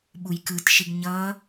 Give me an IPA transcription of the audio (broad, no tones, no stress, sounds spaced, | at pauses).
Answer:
ɓ u j k ɯ t ʃ i ɡ ɲ ʌ